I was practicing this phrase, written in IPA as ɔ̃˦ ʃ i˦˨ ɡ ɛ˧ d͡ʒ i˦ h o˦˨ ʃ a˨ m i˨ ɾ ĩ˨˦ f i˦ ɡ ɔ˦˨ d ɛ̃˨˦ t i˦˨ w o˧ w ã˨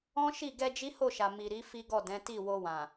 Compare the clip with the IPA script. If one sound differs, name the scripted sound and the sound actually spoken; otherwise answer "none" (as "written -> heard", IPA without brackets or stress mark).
ĩ˨˦ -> i˨˦